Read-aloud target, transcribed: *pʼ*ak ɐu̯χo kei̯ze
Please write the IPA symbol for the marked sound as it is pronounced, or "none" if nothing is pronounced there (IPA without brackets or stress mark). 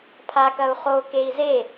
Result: pʰ